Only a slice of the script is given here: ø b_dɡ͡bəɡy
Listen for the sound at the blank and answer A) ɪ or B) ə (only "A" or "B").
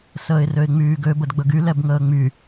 B